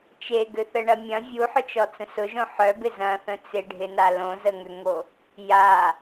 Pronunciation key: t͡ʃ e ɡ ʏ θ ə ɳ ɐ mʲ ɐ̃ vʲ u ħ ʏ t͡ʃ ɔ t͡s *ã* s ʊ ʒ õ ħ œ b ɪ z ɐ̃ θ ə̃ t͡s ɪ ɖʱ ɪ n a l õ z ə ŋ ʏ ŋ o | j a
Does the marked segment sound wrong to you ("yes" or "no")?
yes